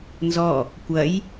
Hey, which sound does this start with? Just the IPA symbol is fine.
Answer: n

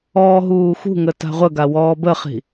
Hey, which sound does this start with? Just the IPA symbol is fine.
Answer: ɔː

